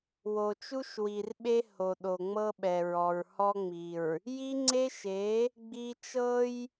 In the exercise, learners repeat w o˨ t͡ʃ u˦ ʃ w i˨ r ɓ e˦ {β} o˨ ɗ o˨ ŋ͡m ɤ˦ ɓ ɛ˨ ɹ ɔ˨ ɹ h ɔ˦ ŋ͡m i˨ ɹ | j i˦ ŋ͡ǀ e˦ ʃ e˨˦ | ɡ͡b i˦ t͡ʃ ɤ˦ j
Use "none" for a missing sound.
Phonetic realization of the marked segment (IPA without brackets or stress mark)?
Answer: h